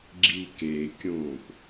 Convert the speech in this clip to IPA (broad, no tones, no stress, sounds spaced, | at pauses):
ɡ͡ǁ i k e kʲ õː p